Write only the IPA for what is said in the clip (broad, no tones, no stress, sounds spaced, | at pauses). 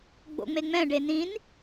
ɡ͡b o̰ ŋ͡m e ŋ͡m ɛ̃ ɖ e n ĩ n